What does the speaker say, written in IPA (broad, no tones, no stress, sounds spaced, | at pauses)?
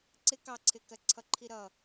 ǀ ɪ k ɑ ǀʰ ɪ k ɜ ǀʰ ʌ ǃʰ i ɾ ʌ